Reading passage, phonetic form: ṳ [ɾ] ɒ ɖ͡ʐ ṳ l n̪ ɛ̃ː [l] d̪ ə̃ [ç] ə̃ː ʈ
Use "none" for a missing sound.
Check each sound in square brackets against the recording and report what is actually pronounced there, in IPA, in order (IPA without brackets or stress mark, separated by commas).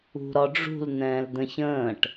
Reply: ɾ, l, ç